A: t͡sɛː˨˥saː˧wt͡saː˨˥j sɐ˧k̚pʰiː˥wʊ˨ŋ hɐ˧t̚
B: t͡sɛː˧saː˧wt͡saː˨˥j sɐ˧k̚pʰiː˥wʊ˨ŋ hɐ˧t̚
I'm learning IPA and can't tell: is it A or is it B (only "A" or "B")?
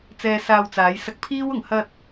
B